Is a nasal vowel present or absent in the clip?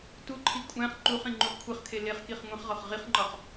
present